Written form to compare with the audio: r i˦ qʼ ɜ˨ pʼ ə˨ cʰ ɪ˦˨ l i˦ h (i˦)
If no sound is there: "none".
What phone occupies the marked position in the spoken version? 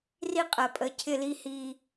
i˦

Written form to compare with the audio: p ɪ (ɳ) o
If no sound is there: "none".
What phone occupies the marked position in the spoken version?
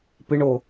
ɳ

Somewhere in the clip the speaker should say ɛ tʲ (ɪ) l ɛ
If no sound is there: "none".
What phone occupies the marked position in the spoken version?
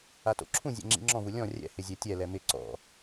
ɛ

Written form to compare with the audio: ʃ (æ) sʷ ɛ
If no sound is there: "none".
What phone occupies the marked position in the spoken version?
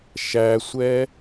æ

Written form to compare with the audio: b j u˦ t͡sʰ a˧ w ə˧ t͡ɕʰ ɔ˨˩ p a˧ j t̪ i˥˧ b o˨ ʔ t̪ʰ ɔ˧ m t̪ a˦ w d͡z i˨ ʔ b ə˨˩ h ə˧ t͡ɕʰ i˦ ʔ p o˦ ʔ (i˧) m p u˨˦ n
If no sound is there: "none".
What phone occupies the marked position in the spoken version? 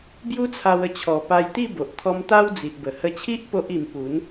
i˧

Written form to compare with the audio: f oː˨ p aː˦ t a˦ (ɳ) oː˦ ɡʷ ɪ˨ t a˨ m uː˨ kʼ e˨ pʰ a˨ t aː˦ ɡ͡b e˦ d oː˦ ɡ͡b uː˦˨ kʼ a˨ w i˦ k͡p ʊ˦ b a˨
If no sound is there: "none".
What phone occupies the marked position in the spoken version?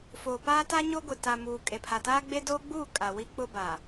ɲ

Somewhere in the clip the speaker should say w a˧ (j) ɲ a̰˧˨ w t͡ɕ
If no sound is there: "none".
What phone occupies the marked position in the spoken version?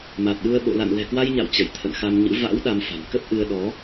j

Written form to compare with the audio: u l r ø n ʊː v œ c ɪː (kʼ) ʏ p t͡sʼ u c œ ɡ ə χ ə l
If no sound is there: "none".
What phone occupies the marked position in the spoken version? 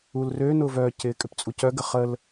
kʼ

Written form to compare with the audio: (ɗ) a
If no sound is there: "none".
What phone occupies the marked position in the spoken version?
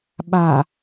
ɓ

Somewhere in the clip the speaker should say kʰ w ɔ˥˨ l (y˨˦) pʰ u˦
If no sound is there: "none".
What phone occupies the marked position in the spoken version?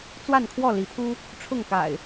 i˨˦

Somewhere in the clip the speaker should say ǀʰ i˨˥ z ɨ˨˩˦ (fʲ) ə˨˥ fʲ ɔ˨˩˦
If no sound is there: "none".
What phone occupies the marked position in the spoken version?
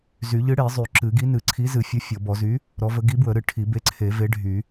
fʲ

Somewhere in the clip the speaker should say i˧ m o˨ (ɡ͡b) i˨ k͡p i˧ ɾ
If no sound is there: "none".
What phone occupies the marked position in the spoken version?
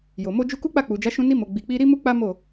ɡ͡b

